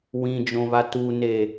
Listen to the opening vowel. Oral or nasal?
nasal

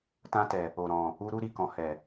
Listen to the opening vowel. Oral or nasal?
nasal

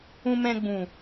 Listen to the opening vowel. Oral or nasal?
nasal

